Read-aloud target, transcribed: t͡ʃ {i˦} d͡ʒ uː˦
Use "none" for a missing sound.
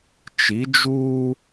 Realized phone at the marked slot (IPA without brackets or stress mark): i˨˦